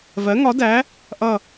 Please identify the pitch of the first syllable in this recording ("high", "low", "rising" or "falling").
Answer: rising